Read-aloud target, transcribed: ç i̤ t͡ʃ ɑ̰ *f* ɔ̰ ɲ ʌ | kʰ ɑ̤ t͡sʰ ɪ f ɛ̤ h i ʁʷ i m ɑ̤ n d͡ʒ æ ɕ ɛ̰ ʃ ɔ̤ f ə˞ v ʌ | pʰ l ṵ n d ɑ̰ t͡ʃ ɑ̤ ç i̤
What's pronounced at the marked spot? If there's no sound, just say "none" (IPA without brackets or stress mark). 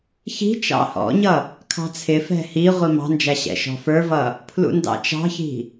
h